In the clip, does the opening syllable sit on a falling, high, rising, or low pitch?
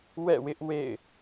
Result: falling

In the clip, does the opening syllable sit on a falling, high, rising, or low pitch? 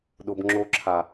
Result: high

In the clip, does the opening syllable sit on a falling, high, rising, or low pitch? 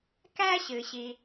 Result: high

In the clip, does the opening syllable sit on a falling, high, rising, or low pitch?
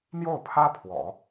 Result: falling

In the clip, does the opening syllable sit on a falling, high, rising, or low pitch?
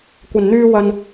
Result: low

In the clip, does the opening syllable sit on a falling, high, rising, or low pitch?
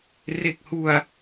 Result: low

